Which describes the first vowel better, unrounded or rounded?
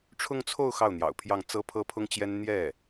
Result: rounded